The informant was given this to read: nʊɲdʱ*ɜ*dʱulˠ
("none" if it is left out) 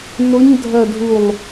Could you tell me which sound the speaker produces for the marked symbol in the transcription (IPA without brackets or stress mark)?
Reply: ɜ